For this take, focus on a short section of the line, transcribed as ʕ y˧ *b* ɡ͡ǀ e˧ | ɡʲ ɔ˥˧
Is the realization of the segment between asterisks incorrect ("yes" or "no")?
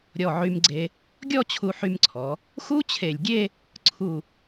yes